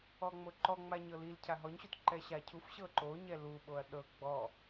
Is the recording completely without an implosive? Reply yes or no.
no